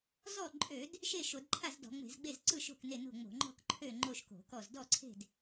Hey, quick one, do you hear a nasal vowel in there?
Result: no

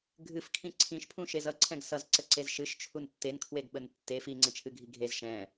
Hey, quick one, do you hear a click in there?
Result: yes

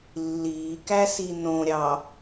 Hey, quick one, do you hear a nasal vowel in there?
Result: yes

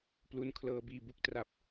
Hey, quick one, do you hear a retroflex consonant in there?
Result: no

